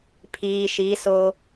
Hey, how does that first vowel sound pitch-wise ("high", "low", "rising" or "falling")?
low